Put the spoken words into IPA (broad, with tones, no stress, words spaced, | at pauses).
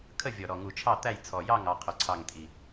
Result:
kʰə˥˨ vʲɔ˨˩ɾɔ˨˩ ŋu˨˩t͡ʃʰɑ˥˨t̪æ˥˨j t͡sʰɔ˨˩jɑ˥˨ŋ ɑ˥˨qʰʊ˨˩ǀʰɑ˥˨ŋ tʼi˨˩